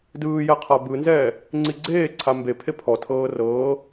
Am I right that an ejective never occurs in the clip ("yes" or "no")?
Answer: yes